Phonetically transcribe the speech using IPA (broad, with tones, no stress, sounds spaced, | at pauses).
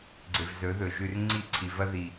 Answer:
ɡ͡ǀ e˨ v z ɵ˨˦ ð ɵ˨ ʒ ʉ˨ r ŋ͡ǀ i˦˨ ǀʰ i˨ v ɐ˦ ð i˨